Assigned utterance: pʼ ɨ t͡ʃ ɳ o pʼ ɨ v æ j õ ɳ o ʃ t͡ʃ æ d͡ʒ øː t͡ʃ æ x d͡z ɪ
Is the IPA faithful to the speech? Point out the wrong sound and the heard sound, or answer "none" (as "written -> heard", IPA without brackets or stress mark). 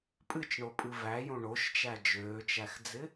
none